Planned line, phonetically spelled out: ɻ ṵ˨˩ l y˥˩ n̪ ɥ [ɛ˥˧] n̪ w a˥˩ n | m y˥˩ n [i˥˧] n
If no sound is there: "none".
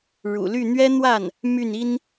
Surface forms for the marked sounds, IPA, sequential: ɛ˥, i˥

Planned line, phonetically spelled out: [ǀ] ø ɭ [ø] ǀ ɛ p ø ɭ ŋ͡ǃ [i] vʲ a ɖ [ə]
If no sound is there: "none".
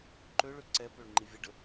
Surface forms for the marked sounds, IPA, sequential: ǃ, ø, i, ə

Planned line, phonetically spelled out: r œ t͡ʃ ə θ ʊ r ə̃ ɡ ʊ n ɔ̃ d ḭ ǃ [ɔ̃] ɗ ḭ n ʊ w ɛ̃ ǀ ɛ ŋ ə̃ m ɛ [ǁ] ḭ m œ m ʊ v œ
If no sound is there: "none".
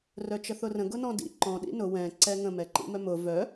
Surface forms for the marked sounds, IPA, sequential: ɔ̃, ǃ

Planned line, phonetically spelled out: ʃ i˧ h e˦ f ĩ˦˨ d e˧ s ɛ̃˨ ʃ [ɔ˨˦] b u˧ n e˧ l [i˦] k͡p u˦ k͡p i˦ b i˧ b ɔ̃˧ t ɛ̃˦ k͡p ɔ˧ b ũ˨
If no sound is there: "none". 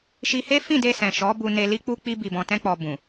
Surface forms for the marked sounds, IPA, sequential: ɔ˨˦, i˦

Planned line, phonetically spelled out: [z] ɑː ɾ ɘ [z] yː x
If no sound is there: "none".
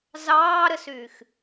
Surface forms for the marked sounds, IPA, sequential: z, s

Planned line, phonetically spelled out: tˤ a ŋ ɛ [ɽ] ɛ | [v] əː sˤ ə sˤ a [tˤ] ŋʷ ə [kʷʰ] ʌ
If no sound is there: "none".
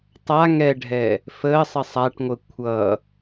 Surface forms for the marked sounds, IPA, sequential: ɖʱ, f, ʈ, kʷʰ

